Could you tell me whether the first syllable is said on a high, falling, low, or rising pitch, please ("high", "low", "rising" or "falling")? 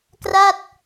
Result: falling